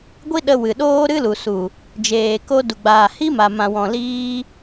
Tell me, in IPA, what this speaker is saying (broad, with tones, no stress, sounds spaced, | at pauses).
ɡʷ i˦ ɗ ə˧ w ɨ˨ ɗ oː˦ ɾ ɨ˦ l u˨ s u˨ | d͡ʒ eː˨ k o˧ d u˨ ɡ͡b aː˨ h i˦ m a˨ m ã˨ w ɔ̃˨ l iː˧